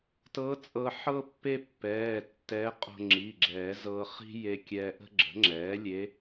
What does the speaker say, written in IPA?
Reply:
t ɤ˧˥ t͡sʼ ɤ˧ ħ ɤ˥ pː e˥ pː ɛː˩˧˩ tː ɛ˧˥ qʼ o̤˧ ŋ͡ǁ i˩˧˩ ɡ͡ǁ ɛː˨˩˦ z ɤ˧ χ i̤˥ j e˧ kʲ ɛː˧ ʔ ə̤˥ ɡ͡ǁ ə̤˩˥ ŋ͡ǁ ɛː˩˥ lʲ e˧˥

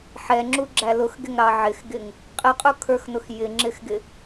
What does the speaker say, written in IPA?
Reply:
ħ ɛ ŋ͡ǁ u ɡ͡ǁ æ l ʊ x ɡ ɪ ŋ ɾ ɑ ʕ ɪ x ɡ ɪ ŋ | qʼ ɪ qʼ u kʰ ə˞ x n ʊ x j ɪ ŋ͡ǁ ɪ x ɡ ɪ

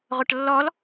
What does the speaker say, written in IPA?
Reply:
ʁʷ ə ʈ lː ɔ l

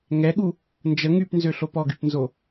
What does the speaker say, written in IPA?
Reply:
ŋ ɛ ɠ u | n d͡ʒ ə ŋ y p n z ø ɬ o p ɔ ɡ y p n z o

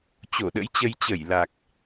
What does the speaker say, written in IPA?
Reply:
t͡ɕ o˧˩ ɗ ə̰˧˥ j t͡ɕ ə˧ j t͡ɕ ə˧˩ j l a˨˩ k̚

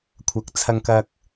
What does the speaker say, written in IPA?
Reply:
kʷʰ ɐ˨˥ k̚ t͡sʰ ɐ˧ ŋ k ɐ˧ k̚

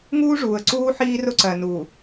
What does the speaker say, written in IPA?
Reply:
ŋ uː˦ ʐ uː˨ ə̯ ǀ uː˦ ħ iː˦ r ʊ˦ ǀ ɜ˨ n uː˨

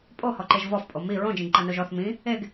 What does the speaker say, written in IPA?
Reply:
pʼ o h ɔ ǃ e ʒ v ɔ f pʼ o m i ɹ õ d͡ʒ ĩ ɡ ǃ a n o ʒ ɔ θ m ĩ | e ɡ

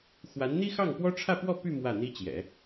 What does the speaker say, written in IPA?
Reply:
x w a˧˥ n n̪ i˥ x ɑ˥˩ ŋ p w ɔ˥ ʈ͡ʂʰ ä˥˧ p w ɔ˥˧ p y˥˧ m w ä˥˩ n̪ i˥ t͡ɕ j ɛ̰˨˩˦

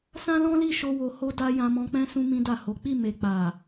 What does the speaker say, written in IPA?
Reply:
s ã˦ l ɔ̃˦ l i˦˨ ʃ o˧ w o˧ h o˧ d a˧ j ã˧ m ɔ̃˧ k͡p ɛ̃˦ s ũ˦ m ĩ˦ d a˦˨ h o˨˦ k͡p i˦˨ m e˨ k͡p a˨

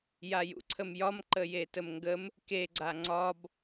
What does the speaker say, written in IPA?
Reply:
j a j ṵ ǀʰ ə m j ɒ m ǃ ə j e t ə m ŋ ɡ ə m | k e ɡ͡ǀ a ŋ͡ǀ ɒ b

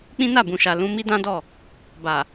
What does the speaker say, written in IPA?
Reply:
k͡p ĩ˦ n a˦˨ b ũ˨ ʃ a˨ l ũ˧ m i˦ d ã˦ d ɔ˦˨ | b a˨

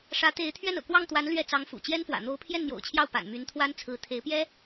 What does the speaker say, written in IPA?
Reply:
ʂ ä˧˥ t̪ e˧˥ ɪ̯ t̪ʰ ɥ ɛ˥˩ n ɤ̰˨˩ k w ɑ˥˩ ŋ t̪ w a˧˥ n l ɥ ɛ˥˩ t͡s ɑ˧˥ ŋ f ṵ˨˩ t͡ɕ j ɛ˥ n f w ä̰˨˩ n̪ o˧˥ ʊ̯ pʰ j ɛ˥˩ n n̪ j o̰˨˩ ʊ̯ t͡ɕʰ j ɑ˥˩ ʊ̯ p a̰˨˩ n m y˧˥ n t̪ʰ w a˥ n t͡sʰ ɹ̩˧˥ t̪ʰ e˧˥ ɪ̯ p j ɛ˥

